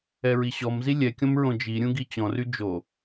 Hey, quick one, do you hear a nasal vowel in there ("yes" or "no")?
yes